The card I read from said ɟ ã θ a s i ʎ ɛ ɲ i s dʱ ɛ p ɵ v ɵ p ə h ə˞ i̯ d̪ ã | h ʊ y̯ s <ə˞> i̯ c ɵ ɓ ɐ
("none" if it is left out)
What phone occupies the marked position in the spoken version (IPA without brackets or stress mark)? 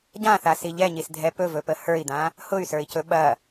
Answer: ə˞